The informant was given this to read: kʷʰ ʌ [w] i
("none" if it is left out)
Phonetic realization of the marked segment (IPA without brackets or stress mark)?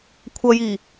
j